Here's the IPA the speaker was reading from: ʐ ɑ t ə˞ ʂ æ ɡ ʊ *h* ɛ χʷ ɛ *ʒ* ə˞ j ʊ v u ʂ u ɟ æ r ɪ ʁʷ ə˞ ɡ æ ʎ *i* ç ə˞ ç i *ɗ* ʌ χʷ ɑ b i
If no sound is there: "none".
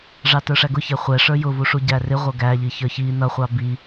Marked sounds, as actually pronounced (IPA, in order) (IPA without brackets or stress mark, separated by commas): ç, ʂ, i, n